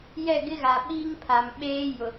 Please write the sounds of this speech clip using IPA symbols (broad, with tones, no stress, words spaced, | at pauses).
jɛ˦˨ɡɪ˦ ɣa˨ɓiː˦ŋpʰa˨mɓeː˦ jʊ˨